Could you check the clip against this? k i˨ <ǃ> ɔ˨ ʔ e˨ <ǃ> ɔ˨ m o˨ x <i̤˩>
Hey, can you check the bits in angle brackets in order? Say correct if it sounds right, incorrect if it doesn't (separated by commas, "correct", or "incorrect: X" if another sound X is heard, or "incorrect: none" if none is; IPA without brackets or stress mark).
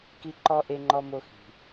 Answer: correct, incorrect: ŋ͡ǃ, correct